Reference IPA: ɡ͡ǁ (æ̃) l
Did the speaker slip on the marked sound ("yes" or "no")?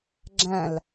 no